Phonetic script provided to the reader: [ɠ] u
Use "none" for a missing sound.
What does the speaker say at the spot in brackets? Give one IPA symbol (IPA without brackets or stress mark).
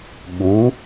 ɠ